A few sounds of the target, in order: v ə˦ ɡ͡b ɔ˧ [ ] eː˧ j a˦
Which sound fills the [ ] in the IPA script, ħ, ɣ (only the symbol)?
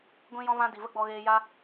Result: ɣ